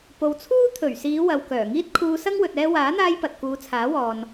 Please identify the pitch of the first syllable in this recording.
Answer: low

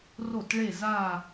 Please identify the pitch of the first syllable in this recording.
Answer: falling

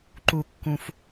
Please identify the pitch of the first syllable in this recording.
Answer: low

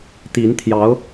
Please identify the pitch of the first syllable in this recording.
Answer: rising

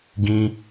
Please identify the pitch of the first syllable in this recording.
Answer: high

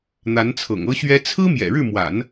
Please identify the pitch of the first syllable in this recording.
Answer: rising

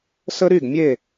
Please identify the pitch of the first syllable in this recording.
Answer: high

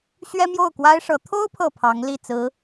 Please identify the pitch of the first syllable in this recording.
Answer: high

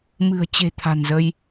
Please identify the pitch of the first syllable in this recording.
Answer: low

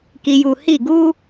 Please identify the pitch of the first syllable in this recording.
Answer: low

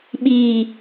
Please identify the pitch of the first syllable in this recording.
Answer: low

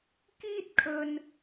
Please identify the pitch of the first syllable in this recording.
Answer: high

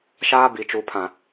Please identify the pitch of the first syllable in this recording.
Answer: high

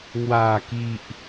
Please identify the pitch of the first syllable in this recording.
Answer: low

